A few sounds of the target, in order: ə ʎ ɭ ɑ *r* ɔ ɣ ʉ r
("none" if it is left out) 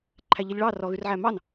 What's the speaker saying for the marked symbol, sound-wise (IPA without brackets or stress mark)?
r